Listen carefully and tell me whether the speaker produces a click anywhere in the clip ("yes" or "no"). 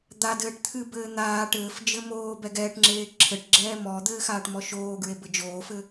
yes